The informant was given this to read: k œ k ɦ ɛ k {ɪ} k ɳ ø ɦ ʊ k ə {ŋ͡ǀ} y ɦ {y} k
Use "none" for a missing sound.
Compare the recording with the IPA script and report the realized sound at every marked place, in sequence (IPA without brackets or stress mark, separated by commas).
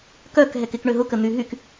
ɪ, n̪, y